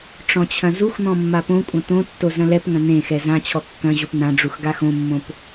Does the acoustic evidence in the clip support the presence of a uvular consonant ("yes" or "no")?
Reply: no